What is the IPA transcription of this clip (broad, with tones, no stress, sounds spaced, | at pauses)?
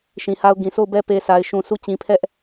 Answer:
ʃ ĩ˨ h a˦ ʊ̯ ɡ ĩ˨ sʰ o˦˨ ʊ̯ b ɛ˦ p e˨ sʰ a˨ ɪ̯ ʃ ũ˨ sʰ u˦˨ t͡ɕ ĩ˨ pʰ ɛ˦ ʔ